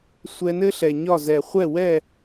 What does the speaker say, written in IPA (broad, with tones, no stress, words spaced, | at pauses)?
sʷɛ˧nɘ˥ɬɛ˩ ɲɒ˥˩zɛ˩ χʷɛ˥˩wɛ˥˩